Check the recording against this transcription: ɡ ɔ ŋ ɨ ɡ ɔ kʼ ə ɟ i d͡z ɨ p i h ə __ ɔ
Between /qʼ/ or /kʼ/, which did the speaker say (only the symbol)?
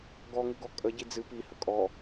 kʼ